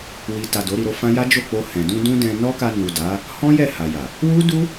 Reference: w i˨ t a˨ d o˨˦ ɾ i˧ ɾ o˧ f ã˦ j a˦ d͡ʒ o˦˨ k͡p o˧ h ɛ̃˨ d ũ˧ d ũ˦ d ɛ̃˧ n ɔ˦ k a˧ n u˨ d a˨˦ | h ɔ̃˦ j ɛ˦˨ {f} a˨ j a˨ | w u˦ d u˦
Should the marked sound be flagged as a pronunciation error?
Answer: yes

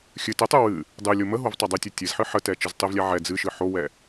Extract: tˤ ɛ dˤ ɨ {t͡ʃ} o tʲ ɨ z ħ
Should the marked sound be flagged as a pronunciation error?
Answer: yes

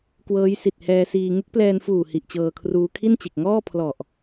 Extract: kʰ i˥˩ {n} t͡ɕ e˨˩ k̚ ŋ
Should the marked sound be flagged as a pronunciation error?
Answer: no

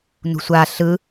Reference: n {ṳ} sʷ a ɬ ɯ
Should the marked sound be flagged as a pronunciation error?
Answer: no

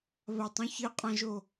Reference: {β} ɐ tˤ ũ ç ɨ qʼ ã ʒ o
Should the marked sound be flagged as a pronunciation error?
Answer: no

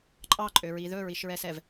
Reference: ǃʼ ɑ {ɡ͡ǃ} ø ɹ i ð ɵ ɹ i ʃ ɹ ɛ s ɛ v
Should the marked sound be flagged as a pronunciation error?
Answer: yes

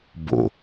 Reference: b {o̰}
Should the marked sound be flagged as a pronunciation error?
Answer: no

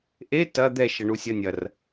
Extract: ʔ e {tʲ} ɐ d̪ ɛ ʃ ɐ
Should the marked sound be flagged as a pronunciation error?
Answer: yes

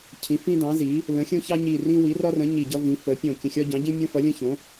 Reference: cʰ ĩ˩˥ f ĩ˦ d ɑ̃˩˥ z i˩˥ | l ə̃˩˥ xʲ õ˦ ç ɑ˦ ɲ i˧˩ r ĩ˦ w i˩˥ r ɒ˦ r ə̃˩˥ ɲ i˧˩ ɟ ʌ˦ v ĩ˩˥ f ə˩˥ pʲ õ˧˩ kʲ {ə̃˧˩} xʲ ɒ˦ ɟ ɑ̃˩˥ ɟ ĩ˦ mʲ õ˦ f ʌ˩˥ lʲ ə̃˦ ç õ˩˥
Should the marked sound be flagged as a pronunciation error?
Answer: no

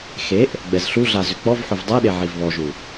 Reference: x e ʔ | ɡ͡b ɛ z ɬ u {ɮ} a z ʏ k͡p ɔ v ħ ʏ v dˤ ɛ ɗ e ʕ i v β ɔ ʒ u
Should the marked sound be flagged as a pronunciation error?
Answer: no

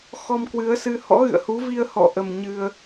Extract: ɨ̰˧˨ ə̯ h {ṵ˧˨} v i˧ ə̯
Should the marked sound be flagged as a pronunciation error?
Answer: yes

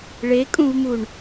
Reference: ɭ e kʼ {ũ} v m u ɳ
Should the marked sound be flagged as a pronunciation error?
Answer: no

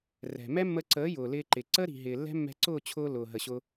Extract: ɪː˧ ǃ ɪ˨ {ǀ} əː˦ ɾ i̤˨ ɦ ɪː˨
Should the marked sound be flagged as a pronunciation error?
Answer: no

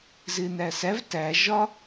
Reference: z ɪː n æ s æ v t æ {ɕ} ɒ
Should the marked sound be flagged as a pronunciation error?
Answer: yes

